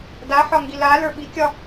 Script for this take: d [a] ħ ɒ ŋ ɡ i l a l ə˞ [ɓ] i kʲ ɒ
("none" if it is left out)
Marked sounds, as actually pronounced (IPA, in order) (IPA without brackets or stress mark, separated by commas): a, ɓ